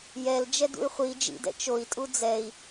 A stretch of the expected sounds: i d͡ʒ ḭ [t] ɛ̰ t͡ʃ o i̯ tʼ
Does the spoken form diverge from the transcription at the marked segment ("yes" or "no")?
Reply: yes